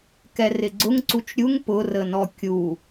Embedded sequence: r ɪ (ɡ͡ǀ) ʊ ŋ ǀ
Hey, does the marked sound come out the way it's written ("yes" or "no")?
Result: yes